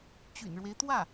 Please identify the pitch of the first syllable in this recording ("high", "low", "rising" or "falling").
low